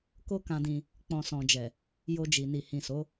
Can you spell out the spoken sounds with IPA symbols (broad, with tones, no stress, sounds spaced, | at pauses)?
k o˦ k ã˧ d ĩ˧ | k͡p ɔ̃˨ s ɔ̃˨ d͡ʒ ɛ˨ | j o˧ d͡ʒ i˨ n i˨ h ĩ˨ s o˨˦